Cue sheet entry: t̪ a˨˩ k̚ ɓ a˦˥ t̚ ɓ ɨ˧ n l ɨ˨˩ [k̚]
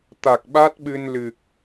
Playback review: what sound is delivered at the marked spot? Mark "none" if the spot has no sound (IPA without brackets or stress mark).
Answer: k̚